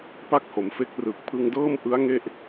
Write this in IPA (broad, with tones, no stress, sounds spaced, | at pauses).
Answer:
p a˥˩ k̚ h o˩˦ m f e˦˥ k̚ r ɯ˨˩ k̚ pʰ ɯ˧ ŋ d ɤː˥˩ m ʔ ɯ˦˥ a̯ ŋ e˥˩ ʔ